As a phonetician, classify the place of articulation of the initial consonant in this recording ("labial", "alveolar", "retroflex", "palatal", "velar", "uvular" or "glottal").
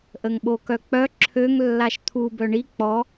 glottal